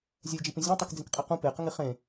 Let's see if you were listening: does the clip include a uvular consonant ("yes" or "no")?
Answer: yes